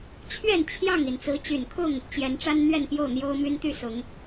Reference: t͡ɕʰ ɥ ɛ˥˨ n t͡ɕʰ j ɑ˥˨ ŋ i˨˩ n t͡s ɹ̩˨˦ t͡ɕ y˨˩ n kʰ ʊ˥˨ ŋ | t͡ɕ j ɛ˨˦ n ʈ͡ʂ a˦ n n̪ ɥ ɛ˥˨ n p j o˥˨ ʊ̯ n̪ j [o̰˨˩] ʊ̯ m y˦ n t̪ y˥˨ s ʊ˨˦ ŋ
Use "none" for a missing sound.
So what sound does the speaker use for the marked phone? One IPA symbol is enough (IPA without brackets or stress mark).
o˦